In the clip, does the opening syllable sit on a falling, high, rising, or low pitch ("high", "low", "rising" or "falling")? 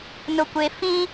low